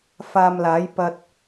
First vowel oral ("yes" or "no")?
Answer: yes